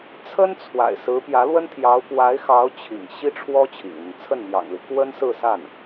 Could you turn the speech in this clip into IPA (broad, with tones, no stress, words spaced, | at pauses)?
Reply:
t͡sʰə˥n t͡sʰwa̰˨˩ɪ̯ sɹ̩˧˥pjä˧˥lwə˥nt̪ʰjɑ˧˥ʊ̯ pwa˧˥ɪ̯xɑ˧˥ʊ̯ t͡ɕʰḭ˨˩ŋ ɕi˥ʈ͡ʂʰwɔ˥ t͡ɕʰḭ˨˩ŋn̪ə˦n t͡sʰə˥˩nmjɑ̰˨˩ŋli˦ kwə˥nsɹ̩˥˧sa˥˩n